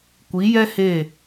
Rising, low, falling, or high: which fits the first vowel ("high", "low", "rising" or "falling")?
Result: rising